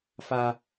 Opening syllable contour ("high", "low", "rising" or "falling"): high